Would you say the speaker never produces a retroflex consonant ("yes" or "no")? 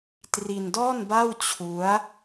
yes